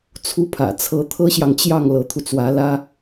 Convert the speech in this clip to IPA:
t͡sʰ u˧˥ pʰ ä̰˨˩ t͡sʰ ɤ˧˥ t̪ʰ ɤ˥ ɕ j ɑ˨ ŋ t͡ɕ j ɑ˥˩ ŋ l ɤ˧˥ t̪ʰ u˧ t͡s w ä˧˥ l ä˥

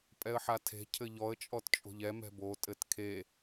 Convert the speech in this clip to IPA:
pʼ ɛ ə̯ ħ a tʰ e̤ cʰ ɘ ʎ ɔ ə̯ t͡ʃʼ ɔ t t͡ʃʼ o̤ ʎ ɛ m ɛ̤ b o tʼ ɘ t kʰ e

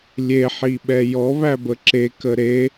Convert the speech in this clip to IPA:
lʲ e ħ i ɓ ɛ j ɔ β æ b ə ǁ e k ə ɾ e

